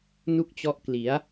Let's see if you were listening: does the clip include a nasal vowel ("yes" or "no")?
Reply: no